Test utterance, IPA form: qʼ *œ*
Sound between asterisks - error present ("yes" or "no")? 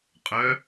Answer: no